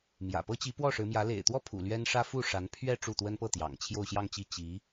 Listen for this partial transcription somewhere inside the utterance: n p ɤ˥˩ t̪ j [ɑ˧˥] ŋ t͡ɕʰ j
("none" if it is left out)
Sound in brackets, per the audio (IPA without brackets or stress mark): ɑ̰˨˩